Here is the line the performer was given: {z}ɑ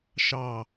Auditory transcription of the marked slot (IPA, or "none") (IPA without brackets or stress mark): ʃ